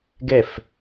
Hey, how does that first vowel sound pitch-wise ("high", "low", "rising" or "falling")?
falling